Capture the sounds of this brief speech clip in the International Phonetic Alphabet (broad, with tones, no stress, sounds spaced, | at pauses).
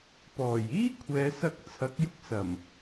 p ɔː˨˩ j iː˥ kʷʰ ɛː˨˧ s ɐ˧ k̚ t͡sʰ ɐ˨˥ k̚ j ʊ˧ k̚ s ɐ˨˩ m